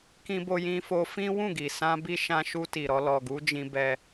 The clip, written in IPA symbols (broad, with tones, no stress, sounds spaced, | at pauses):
k ĩ˧ b o˧ j ĩ˧ f o˧ f ĩ˦ w ũ˦˨ ɡ i˨ s ã˧ b i˧ ʃ ã˧ ʃ u˧ t i˨ ɾ ɔ˧ l ɔ˨ ɡ u˨˦ d͡ʒ ĩ˧ b ɛ˧